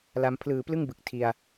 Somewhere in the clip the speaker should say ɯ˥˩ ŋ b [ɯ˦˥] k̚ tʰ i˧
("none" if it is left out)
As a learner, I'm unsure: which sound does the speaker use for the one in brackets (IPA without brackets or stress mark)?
ɯ˨˩